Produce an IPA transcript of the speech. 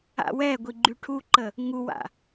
a̰wɛɡʷi ɡ͡ǃyʈʰuǃə | ŋuwa̰

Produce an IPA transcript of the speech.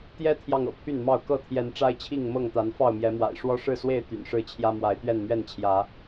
t̪jɛ˦t̪ʰjɑ˨ŋ ɤ̰˨˩pʰy˥˨nmɑ˥˨ʊ̯ kɤ˥˨t̪ʰjɛ˨˦n ʈ͡ʂa˦ɪ̯t͡ɕʰi˥˨ŋmɤ˥˨ŋt̪a˨˦n fɑ˥˨ʊ̯mjɛ˨˦mwa̰˨˩ɪ̯ ʂwɔ˦ʂɻ̩˥˨swe˥˨ɪ̯ t̪y̰˨˩nʂɻ̩˥˨t͡ɕʰjä˦ mwa˨˦ɪ̯t̪ɥɛ˥˨n mɥɛ˥˨nt͡ɕʰjä˨˦

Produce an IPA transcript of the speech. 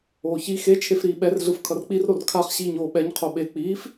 oːçi xe t͡ʃʰefɾiːɓɛr ɮɯfkʰʌrk͡pir ɾorkʰaχ ɕiːɲoːɓɛɲ qʰoɓe k͡piːf

